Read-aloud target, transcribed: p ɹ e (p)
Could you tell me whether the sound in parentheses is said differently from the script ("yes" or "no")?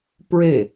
yes